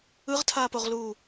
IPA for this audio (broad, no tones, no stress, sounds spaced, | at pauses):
ɯ ʁ tʰ aː p o ʁ l uː